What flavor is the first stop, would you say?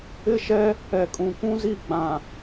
ejective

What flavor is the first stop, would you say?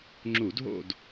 click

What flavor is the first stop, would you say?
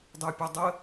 plain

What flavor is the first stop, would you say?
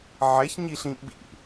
implosive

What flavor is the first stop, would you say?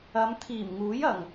aspirated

